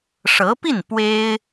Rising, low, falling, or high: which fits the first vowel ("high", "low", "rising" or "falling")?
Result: rising